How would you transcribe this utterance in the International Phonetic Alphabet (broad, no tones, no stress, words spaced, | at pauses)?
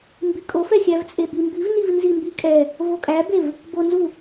mbikʼofɛxʲæv t͡sʼebimbivniv nzimbikʼɛ | vokʼæbev | bonzu